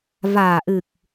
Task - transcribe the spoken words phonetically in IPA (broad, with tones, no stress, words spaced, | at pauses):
vaː˨˩ʔɨ˨˩k̚